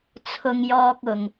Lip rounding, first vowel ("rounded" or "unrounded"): rounded